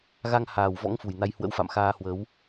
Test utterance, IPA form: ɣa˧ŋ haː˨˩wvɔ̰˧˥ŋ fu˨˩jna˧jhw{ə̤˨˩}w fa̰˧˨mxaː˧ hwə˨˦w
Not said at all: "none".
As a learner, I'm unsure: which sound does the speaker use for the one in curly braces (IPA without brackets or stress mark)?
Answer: ə̰˧˥